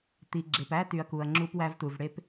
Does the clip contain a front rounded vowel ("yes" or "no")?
yes